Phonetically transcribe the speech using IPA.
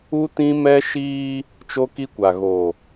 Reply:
u˦ t ĩ˦ m ɛ˦ ʃ iː˦ | t͡ʃ o˦ k i˦ kʷ a˨ ɣ o˨

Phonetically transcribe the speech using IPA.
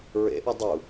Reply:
ɹ ḛ ʔ ʌ dˤ u

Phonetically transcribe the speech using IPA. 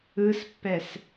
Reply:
ɯ s pː ɛ s

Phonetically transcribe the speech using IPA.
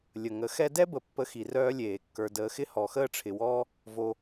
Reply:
lʲ ə˨ ŋ ə˨˦ x ɛ˦ d ɛ˦ b ə˨ pː ə˧ x i˧ r œː˦ lʲ eː˨ kː ə˞˧ d əː˧ x ɪ˦ h ɔ˨˦ x əː˦ ʈ͡ʂʰ ɪ˧ w ɔː˦ | v o˧

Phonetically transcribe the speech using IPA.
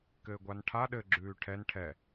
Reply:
k ɘː ɡʷ a n ʈʰ a ɗ ɘ ɡ͡ǁ ʉː ʈʰ ɛ n ʈʰ ɛ

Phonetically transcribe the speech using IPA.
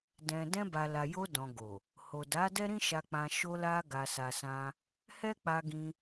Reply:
d ɛ̃˨ d ɛ̃˧ b a˨ l a˨ j o˧ d ɔ̃˨ ɡ o˨ | h o˨ d a˨˦ d ɛ˦ ɾ ĩ˦ ʃ a˧ k͡p ã˧ ʃ o˧ l a˧ ɡ a˨ s a˨ s ã˧ | h ɛ˦ k͡p a˧ ɡ ĩ˧

